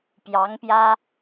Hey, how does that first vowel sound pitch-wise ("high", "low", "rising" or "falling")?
rising